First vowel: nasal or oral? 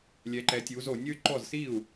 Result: oral